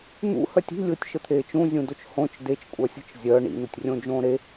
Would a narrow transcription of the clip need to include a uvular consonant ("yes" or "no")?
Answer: no